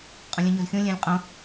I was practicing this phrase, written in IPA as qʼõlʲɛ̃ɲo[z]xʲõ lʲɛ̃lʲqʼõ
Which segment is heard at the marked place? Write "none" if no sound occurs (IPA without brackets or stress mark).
z